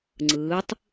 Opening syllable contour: rising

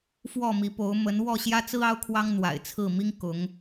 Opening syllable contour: falling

